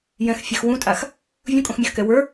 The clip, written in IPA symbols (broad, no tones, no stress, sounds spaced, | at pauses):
j ɛ̃ x fʲ ɛ x w ũ tʼ a x | vʲ ũ kʼ õ x mʲ ə x k ɛ w ə˞